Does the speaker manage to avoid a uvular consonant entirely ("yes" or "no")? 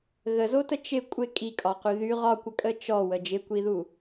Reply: no